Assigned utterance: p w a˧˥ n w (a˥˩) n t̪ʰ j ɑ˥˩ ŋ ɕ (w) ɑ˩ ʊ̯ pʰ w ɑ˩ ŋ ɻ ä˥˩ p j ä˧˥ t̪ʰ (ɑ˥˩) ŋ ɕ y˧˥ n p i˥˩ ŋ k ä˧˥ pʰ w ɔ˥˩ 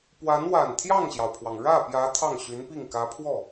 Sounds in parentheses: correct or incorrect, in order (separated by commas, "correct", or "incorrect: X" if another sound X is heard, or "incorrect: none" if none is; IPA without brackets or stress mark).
incorrect: a˨˩, incorrect: j, correct